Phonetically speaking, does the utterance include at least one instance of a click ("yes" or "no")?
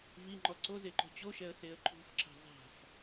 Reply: yes